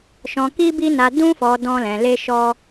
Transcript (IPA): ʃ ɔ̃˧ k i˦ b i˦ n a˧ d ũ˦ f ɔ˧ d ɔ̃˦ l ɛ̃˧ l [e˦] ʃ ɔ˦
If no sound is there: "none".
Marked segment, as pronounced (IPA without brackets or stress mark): e˦